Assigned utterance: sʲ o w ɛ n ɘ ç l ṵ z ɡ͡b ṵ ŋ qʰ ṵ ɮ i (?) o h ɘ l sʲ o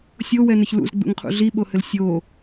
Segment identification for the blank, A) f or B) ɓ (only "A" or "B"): B